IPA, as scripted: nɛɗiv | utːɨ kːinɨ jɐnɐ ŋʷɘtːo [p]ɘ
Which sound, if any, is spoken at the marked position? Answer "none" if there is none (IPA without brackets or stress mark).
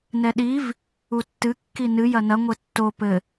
p